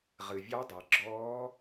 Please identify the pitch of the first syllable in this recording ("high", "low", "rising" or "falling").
low